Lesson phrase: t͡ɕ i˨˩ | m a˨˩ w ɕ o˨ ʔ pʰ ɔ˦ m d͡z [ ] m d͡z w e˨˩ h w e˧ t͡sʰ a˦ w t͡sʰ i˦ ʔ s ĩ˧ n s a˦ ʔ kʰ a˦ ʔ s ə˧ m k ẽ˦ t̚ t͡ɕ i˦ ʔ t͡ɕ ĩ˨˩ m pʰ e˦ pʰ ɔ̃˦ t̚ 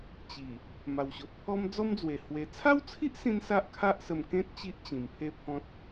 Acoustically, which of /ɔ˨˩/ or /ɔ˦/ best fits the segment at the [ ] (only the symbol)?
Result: ɔ˦